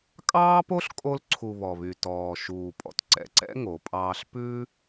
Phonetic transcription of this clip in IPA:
kʼ ɑː˦ p o˦ ɬ kʼ o˧ l ǀʰ u˨ β ɔ˨ β y˨ t ɔː˨ ʃ uː˨ pʼ ɔ̰˧ t ǀ ɛ̰˨ ǀ ɛ̰˦ ŋ o˨˦ pʼ ɑː˦ ɬ p ʉ˦

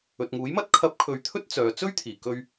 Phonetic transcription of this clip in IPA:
ɵ˨ t̚ ŋ uː˨˥ j m ɐ˥ t̚ kʰ ɐ˨˥ p̚ kʰ ɵ˨ ɥ t̪ʰ ɵ˥ t̚ t͡s œː˨ t͡s ɵ˥ ɥ t̪ʰ iː˨˩ k ɵ˧ ɥ

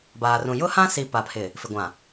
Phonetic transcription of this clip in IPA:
b aː˨ r ũ˨ j ʊ˦ h ã˦ s i˨ p a˨ pʰ ɪ˨ | f ɪ˨ ɡʷ ã˨

